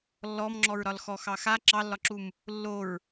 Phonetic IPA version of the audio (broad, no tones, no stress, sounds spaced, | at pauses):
lː ɔ m ŋ͡ǁ ɔ ɹ ɾ ɒ l x ɔ x ɑ x a ǁ ɑ lː ɒ ǁ u m | lː o ɹ